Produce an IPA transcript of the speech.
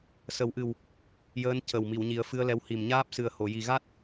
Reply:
s ə˨˩˦ w ʔ ɨ˨˩ w | j əː˧˥ n c ə˨˩ w m i˨˩˨ w ɲ i˨˩˦ ə̯ f ɨ˧ ə̯ l ɛ˧ w h i˨˩ m ɲ aː˦˥ p̚ s ɨ˨˩ ə̯ h o˨˩˨ j i˨˩ ɣ a˦˥ t̚

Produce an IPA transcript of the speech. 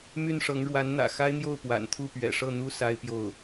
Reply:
m y˥˩ n ʂ ɤ˧˥ ŋ ɻ w a˧˥ n n̪ ä̰˨˩ x a˥ ɪ̯ n̪ j o˥˩ ʊ̯ p w a̰˨˩ n t̪ʰ u˥˩ p ɥ ɛ̰˨˩ ʂ ɤ˥˩ n̪ u˥ s a˥ ɪ̯ p j o˥˩ ʊ̯

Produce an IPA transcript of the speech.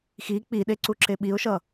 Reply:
x i k͡p i ɗ e ǀ u ǁ e ɓ i ʊ̯ ʃ ʌ

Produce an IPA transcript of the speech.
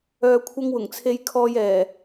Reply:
œː˧ kʷʰ ɐ˥ ŋ w ʊ˨˩ ŋ t͡sʰ e˧ j kʰ ɔː˧ j ɛː˨˩

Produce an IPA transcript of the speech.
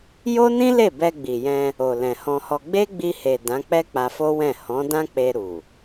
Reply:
j o˦ n ĩ˦ l e˦˨ b ɛ˧ ɡ͡b i˨ j ɛ̃˧ | o˨ l ɛ̃˨ h ɔ̃˧ h ɔ˧ ɡ͡b e˦ ɡ͡b i˧ h e˨ d ã˨˦ k͡p ɛ˦ k͡p a˧ f o˦ w ɛ̃˦˨ h ɔ̃˨˦ d ã˦ k͡p e˧ ɾ u˨

